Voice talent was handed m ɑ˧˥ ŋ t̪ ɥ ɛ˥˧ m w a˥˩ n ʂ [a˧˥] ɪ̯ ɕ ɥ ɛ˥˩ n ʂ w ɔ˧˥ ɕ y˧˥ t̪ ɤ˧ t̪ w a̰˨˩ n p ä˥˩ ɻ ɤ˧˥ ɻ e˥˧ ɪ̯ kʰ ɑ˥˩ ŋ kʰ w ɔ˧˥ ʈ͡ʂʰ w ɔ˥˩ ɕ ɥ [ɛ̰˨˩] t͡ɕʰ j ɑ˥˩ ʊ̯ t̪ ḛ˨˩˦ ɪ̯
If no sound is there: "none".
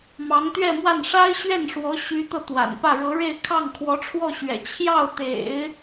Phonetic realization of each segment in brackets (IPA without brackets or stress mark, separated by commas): a˥, ɛ̰˨˩